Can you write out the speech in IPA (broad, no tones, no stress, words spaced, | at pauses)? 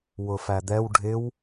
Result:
wʊfæd̪ɛw ɖʱɪw